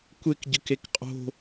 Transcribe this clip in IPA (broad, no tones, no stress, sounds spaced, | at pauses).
kʷ e k ɟ ɯ k e k qʼ o̤